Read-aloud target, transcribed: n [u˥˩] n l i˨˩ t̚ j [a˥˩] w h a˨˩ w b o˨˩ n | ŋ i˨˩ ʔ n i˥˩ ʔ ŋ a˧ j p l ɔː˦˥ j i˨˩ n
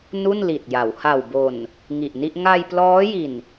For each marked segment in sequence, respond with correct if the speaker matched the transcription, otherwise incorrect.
correct, incorrect

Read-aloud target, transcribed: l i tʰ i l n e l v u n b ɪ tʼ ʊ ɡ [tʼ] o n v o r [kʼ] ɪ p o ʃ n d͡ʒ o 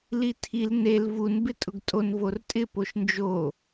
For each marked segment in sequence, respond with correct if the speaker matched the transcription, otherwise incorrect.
correct, incorrect

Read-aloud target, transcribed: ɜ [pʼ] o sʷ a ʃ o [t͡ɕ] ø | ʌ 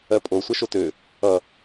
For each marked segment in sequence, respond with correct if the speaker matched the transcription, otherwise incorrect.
correct, incorrect

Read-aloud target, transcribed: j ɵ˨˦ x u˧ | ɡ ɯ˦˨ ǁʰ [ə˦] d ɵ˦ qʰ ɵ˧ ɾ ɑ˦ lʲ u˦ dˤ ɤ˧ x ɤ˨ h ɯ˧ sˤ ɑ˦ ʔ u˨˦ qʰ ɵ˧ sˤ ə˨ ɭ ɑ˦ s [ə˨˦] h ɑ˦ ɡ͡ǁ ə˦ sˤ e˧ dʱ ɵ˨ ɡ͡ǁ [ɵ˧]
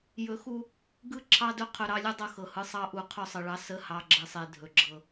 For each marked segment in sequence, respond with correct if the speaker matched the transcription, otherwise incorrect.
incorrect, incorrect, incorrect

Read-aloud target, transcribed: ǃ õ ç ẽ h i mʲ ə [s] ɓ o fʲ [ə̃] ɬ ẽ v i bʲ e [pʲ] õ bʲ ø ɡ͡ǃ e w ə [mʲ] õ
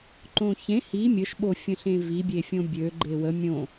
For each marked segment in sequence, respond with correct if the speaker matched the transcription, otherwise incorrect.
incorrect, correct, incorrect, correct

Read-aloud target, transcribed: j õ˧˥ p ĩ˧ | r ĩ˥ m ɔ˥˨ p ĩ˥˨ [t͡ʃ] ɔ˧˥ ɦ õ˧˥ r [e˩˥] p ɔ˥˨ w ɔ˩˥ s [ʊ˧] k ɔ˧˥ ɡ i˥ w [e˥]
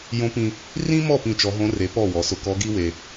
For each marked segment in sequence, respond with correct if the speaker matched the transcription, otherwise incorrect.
correct, correct, correct, incorrect

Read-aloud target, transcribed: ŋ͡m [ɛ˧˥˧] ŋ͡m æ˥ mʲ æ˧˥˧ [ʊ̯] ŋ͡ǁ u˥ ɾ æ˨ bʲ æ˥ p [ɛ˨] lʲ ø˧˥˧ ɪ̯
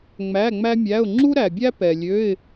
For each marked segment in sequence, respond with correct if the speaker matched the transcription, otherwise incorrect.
incorrect, correct, correct

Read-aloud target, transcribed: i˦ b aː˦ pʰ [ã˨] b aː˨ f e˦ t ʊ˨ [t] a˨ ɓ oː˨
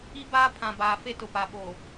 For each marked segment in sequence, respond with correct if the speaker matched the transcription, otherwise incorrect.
correct, incorrect

